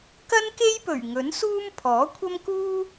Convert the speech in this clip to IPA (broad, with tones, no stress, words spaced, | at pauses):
kɐ˥nke˥jpɵ˨˩ɥ ŋɵ˨˥nsuː˥m pʰɔː˨˥kʷʰɐ˥mkuː˥